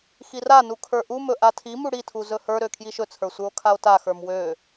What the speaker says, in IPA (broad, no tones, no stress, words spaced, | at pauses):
xiranu kʰə˞ʔumɵ ʔatʰimu ɽitʰu zɵhə˞ɾø kʰjiʃɵt͡sʰə˞ sʷə˞o̯kʰao̯taxə˞m wø